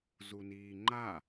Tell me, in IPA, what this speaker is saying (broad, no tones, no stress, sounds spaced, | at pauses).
z u n iː ŋ͡ǃ a